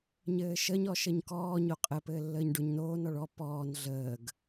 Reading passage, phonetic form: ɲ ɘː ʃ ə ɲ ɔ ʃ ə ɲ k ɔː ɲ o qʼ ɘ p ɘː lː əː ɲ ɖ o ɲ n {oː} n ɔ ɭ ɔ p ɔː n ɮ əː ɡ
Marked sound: correct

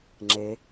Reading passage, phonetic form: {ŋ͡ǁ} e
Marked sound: correct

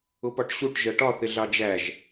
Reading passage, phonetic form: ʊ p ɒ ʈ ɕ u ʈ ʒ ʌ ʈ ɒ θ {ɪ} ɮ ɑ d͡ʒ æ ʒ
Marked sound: correct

